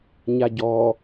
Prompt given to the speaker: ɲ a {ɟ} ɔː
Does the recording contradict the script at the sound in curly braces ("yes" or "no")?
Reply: no